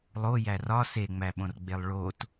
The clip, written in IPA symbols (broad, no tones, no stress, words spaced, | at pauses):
lˠojæ rɒ seŋ͡mæɓõrɡ͡belˠ ɭot